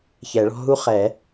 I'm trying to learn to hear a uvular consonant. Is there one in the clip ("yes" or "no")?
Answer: yes